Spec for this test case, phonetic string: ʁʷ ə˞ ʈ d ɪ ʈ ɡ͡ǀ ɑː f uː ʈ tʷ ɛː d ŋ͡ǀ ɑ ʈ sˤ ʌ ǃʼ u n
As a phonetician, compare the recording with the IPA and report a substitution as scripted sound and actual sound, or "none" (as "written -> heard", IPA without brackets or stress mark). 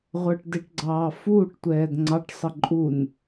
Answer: none